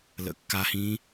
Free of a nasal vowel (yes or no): no